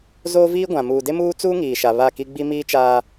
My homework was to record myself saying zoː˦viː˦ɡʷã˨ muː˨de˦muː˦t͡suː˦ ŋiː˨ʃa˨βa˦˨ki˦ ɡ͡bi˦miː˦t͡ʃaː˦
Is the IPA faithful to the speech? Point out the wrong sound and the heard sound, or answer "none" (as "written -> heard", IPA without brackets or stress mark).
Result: none